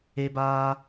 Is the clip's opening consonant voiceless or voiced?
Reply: voiced